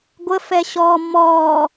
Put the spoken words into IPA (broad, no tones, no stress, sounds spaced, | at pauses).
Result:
ɡʷ ə f ɛ ɕ ɔː m ɔː